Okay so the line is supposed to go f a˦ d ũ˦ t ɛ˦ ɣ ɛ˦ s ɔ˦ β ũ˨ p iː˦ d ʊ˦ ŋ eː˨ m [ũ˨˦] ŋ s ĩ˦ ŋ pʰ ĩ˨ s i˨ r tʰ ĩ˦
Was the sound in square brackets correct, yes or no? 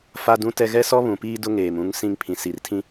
no